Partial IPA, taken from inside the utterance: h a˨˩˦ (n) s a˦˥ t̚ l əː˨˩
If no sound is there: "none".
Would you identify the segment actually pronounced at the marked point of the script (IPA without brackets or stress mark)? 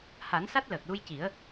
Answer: n